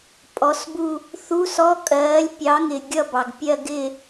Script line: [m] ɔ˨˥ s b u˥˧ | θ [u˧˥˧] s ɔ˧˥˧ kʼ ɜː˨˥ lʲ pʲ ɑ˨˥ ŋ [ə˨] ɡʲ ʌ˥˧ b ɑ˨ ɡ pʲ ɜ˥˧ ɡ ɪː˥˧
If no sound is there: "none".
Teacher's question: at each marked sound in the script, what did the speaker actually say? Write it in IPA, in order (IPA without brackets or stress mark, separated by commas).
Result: pʼ, u˧˥˧, ɪ˨